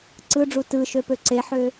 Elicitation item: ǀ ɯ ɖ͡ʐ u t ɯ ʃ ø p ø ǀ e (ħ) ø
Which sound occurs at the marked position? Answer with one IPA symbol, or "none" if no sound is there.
ħ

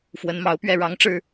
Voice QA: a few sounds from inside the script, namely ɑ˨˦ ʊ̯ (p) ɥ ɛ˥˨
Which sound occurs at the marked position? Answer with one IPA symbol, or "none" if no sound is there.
p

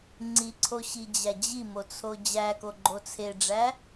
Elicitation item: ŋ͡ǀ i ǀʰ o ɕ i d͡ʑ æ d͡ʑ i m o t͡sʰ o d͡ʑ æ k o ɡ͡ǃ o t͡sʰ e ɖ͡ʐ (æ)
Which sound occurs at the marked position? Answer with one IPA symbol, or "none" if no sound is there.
æ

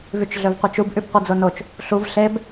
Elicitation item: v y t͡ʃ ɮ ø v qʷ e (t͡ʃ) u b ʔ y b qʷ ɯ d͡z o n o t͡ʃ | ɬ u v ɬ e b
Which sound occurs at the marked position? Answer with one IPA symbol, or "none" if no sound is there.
t͡ʃ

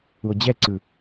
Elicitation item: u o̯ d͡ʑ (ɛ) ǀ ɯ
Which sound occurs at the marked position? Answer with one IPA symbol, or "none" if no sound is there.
ɛ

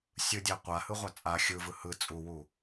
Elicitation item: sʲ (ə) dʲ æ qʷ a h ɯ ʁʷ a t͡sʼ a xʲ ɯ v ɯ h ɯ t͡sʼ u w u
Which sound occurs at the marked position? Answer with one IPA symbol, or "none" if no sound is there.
ɯ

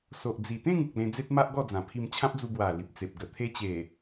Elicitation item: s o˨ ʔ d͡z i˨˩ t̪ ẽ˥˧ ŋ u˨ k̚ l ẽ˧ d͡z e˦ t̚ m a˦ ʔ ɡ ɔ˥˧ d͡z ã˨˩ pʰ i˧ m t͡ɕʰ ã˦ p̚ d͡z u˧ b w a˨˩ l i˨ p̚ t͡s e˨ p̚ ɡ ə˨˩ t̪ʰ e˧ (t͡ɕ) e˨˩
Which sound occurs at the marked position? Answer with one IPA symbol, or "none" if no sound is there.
t͡ɕ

